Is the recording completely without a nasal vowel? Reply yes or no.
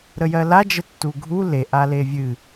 yes